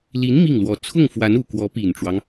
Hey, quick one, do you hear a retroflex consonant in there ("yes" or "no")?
yes